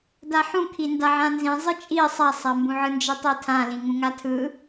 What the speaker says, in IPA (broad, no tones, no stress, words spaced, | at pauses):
daħũkʰi ndaʕãnzĩ zˤɯt͡ʃʼi sˤasˤambũʕɯ nd͡ʒitˤitʰãlĩ ŋũŋatʰɯ